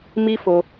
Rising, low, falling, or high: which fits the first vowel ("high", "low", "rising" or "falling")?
high